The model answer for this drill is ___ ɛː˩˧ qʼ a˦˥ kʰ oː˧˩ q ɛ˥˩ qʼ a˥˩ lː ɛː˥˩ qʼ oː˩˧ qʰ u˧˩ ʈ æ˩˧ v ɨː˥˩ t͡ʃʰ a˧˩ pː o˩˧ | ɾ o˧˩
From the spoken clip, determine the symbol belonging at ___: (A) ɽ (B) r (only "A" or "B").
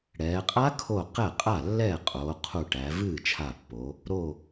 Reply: A